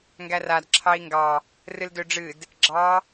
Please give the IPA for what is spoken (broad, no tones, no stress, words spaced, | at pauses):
ŋɡærad ǁʰɑi̯ŋɡɑ | rɨldøɖ͡ʐɨd | ɡ͡ǁɑ